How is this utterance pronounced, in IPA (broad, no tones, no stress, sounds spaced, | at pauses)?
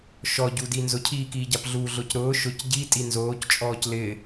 ʃ ɔ ɟ u d i n z ʊ cʰ iː k iː ɟ a p ɮ uː ɮ ʊː c ɾ ʊː ʃ ʊ c ɟ i tʼ i n z oː c t͡ʃʼ ɔː c l ɪ